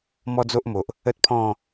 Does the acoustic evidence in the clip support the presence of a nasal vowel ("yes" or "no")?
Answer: yes